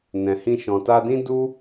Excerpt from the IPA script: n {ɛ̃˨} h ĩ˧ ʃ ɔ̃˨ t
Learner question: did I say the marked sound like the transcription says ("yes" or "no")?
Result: yes